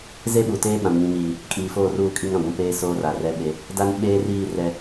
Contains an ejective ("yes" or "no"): yes